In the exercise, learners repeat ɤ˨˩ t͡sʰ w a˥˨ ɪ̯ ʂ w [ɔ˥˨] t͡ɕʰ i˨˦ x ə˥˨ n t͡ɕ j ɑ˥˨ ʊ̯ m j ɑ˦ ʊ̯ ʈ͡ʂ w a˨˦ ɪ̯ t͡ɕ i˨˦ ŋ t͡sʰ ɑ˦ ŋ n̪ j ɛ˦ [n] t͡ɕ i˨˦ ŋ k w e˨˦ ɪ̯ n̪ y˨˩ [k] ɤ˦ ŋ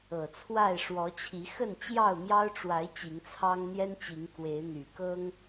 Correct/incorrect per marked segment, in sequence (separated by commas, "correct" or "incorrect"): incorrect, correct, correct